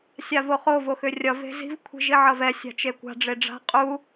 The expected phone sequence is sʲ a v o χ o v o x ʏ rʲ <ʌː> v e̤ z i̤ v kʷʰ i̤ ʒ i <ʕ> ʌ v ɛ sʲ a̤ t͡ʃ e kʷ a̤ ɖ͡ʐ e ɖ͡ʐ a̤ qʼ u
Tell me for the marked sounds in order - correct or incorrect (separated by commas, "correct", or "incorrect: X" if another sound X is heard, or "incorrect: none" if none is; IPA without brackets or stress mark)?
incorrect: ʌ, correct